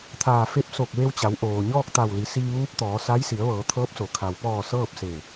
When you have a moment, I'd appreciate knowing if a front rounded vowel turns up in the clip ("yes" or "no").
no